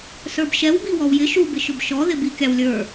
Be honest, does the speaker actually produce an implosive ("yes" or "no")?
no